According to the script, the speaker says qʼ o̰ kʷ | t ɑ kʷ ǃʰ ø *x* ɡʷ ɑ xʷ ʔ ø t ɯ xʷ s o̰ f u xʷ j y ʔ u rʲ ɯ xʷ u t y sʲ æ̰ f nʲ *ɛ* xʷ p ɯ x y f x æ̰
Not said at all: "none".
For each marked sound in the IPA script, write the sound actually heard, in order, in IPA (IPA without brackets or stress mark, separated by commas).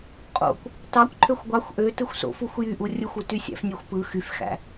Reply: xʷ, e